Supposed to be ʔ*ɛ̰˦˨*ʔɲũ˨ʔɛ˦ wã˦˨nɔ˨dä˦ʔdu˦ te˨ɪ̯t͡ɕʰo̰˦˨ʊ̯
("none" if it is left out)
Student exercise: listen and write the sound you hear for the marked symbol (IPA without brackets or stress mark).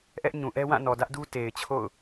ɛ˦